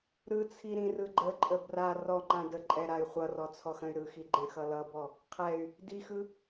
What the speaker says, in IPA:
ɾɯt͡sʰi ɾĩrɯɡ͡ǃəǃʼə bra rɔŋ͡ǃã də ǃʼɛɾay̯χʷʌrɔ t͡sʰɔxə̃y̯ɾɯxi ɡ͡ǃɛ̃xʌlʌbɔ | qʰɛy̯ | dixɯ

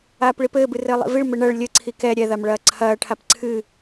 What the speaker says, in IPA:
aːpɭipɘː bɨrɘːlˠḭviɭ mɘɳɐɭ lʲɘ ǀʰikɛ ɾʲɛ ðamɭɐːǀʰɐː ʈʰapǀʰɨ

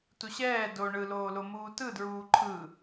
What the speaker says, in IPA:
tuɕɛː do ɳɯloːlomuː tɯdɹuː ǃʰɯ

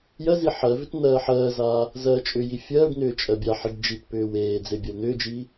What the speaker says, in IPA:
jɜzi ħɜvʏt n̪ɜːħɜːzaː | zɜːt͡ʃʼʏji fʲɜːɖnʏː t͡ʃʼɜbʲaħiɖ d͡ʒitpʏːw eː d͡zebʲɵln̪ʏːd͡ʒi

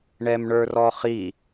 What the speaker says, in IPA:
ɳɛmɳə˞rɔχi

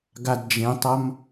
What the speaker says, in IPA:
ɡadd͡ʒẽtˤʌm

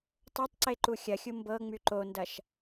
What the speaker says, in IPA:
tˤotˤǀe ǃuxʲɐxʲu mbɤŋ͡my ǃondɐʃ

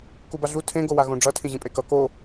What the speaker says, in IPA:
kubaɮu tʰẽ ɡowaɣõɖ͡ʐʌ tʰĩʑĩpʼekʌ ko

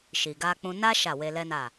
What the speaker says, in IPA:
ʃi˨ɡa˧k͡pũ˧ na˦ ʃa˦˨we˧lɛ˦na˦˨

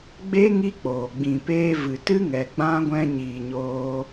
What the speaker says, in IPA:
ɡ͡be˦ ŋi˦ k͡poː˨ ɡ͡bĩ˨peː˧ vɨ˨tɨ˦ ŋɛ˨ɡ͡bã˦ɡʷɛ̃˧ ɲiː˨ɲoː˧

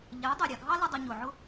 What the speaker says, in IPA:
ʎæ˨˦ dˤɛ˨ɾʲɑ˨ɡʱɑ˦ lə˧ dˤə˧ɲʊ˨ʕʊ˦

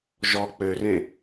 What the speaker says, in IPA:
ʒɔ k͡pørẽ

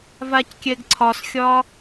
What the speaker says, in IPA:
vackʲɛɡǀʰɒsxʲɒ

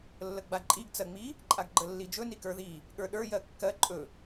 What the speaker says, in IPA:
lːəɡ͡baǃʼiɡ t͡sɜŋ͡mi | ǃʼaɡɡ͡ǃəlːid͡ʒɵ nikə˞ði | ɠə˞ɗə˞ jɜkːɜ ǃʼɵ

